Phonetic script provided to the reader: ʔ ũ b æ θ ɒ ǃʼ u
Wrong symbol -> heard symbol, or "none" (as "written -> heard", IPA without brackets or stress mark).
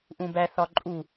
none